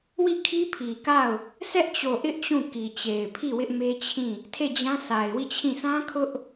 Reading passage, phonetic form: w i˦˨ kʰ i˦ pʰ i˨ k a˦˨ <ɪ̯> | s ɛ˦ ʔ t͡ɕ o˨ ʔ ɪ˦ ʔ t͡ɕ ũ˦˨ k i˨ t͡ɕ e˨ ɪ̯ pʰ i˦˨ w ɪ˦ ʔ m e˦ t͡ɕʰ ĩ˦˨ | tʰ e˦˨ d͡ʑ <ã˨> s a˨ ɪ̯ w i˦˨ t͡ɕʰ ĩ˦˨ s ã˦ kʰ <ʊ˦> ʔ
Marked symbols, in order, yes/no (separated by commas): no, no, yes